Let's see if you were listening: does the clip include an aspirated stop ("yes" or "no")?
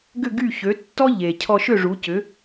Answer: yes